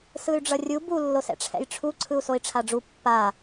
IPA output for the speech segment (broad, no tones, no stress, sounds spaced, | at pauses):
s ɯ y̯ ɖ͡ʐ ʌ rʲ u b u lː o s ɛ̰ ʈ͡ʂʰ ɛ̰ j ʈ͡ʂʰ u ǀʰ ɯ u̯ s o i̯ ʈ͡ʂʰ a ɖ͡ʐ u pː a